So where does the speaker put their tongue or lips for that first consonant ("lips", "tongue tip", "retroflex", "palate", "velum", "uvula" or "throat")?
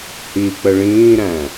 throat